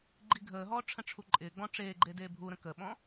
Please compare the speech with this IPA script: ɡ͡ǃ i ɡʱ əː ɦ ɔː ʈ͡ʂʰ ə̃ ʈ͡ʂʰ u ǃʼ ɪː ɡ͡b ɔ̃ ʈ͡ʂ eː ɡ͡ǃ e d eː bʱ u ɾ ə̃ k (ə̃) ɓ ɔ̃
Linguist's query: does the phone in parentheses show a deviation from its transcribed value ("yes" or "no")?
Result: yes